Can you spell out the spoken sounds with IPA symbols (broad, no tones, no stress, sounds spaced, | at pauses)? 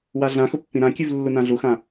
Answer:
w a ɮ ã x ʊ pː ĩ ɾ ã kʲ ʉ v lː u n ã ɮ u x ã